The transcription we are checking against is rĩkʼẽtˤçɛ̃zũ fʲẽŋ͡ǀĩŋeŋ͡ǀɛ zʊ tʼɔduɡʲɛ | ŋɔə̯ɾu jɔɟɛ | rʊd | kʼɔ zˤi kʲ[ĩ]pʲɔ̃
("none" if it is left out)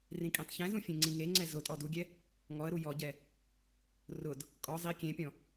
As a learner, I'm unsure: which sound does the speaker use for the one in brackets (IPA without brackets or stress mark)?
ẽ